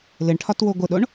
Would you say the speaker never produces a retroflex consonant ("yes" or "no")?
no